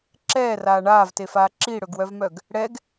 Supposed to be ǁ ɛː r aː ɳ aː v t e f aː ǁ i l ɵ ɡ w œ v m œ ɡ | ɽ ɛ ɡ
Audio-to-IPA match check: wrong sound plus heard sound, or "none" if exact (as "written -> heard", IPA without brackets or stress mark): l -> ɽ